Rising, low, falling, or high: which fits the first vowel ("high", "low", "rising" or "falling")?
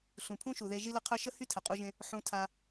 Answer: low